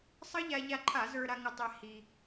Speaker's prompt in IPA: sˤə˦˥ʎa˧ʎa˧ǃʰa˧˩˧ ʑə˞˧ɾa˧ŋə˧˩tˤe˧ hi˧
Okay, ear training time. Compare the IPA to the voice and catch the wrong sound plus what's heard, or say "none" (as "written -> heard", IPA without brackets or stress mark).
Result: ʑ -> z